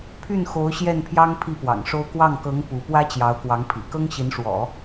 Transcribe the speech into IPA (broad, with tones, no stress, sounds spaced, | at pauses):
pʰ y˥˩ n x o˧˥ ʊ̯ ɕ j ɛ˥˩ n pʰ j ɑ˥ ŋ pʰ i˥˩ p w ɑ̰˨˩ ŋ ʂ o˥ ʊ̯ k w ɑ˥˩ ŋ k ɤ˧˥ ŋ p u˧˥ p w ä˥ t͡ɕ j ɑ˧˥ ʊ̯ k w ɑ˧˥ ŋ pʰ ḭ˨˩ k ɤ˥ ŋ ɕ i˧˥ n ʂ w ɔ̰˨˩˦